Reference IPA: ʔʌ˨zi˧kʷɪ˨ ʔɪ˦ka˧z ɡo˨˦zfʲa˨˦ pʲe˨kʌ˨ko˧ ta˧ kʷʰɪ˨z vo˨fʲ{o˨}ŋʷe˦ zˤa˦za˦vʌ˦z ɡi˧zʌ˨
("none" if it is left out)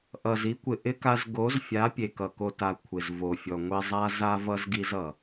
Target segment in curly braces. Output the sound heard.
ɔ˨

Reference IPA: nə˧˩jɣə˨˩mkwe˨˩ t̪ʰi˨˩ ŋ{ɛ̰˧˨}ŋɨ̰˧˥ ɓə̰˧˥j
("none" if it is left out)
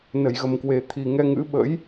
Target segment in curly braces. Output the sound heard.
ɛ˧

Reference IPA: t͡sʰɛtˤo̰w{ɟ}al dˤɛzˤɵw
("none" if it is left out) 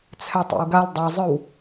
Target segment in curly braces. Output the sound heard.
ɡ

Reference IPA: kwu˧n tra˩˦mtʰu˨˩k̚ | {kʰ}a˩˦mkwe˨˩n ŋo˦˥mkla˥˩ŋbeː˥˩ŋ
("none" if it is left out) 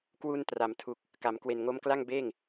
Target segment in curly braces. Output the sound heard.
k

